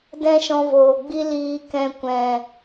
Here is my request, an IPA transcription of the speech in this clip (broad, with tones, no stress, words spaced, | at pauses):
dɛ̃˦ʃɔ̃˧voː˨ɡ͡bi˦ liː˧kɛ̃˧ kʷɛ̃˨